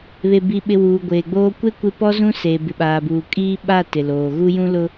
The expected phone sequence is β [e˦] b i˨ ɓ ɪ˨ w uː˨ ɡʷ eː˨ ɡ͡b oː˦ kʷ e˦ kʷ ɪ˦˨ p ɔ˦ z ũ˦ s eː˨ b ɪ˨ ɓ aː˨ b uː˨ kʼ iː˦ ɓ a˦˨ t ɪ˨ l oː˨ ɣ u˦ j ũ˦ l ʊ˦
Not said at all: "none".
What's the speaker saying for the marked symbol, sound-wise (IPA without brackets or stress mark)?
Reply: e˨